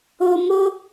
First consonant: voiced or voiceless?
voiced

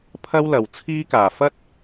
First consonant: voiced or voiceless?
voiceless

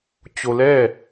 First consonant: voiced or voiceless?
voiceless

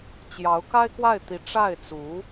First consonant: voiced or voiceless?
voiceless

